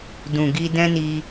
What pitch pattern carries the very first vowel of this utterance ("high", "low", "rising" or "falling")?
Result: low